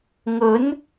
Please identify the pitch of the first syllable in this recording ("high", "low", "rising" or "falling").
rising